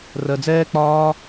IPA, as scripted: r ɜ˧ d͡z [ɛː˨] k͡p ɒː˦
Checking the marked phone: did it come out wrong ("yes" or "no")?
yes